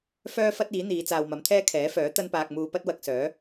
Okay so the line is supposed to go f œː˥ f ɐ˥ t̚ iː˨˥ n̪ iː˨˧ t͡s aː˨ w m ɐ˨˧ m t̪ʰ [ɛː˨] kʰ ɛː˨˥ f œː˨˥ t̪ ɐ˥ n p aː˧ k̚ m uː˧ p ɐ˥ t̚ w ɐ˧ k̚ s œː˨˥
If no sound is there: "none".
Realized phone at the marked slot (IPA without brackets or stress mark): ɛː˥